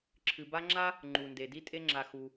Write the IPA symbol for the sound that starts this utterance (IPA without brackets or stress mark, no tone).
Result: ǁʰ